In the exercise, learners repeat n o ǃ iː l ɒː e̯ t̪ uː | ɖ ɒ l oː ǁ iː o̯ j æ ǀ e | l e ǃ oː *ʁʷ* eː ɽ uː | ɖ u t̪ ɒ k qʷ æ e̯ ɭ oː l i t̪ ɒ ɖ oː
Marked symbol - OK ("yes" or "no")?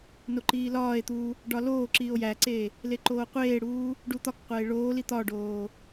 no